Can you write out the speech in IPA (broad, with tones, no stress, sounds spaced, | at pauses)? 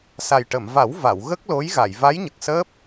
s a˨˩ j ʈ ə˨˩˨ m v a˨˩˦ w v a˨˩˨ w ɣ ə˦˥ k̚ l o˧˥ j ɣ a˨˩˨ j v a˧˥ j ɲ ə˨˩ k̚ s əː˦˥ p̚